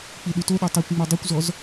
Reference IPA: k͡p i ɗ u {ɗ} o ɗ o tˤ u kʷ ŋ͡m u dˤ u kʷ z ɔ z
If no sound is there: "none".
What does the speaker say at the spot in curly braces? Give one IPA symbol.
t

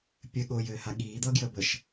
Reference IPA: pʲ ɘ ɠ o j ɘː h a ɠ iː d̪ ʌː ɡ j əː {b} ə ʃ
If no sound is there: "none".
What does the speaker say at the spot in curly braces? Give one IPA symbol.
b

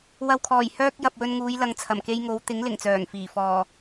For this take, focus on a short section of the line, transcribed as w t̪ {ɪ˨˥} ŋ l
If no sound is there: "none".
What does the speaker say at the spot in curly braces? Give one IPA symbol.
ɪ˨˥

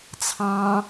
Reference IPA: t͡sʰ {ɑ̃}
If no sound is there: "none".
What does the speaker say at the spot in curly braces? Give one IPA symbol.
ɑ̃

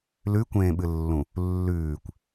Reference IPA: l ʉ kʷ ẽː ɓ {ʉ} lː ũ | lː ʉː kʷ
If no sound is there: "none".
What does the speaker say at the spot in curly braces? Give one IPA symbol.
ɨ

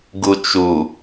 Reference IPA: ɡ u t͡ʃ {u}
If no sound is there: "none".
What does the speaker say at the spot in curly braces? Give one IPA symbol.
u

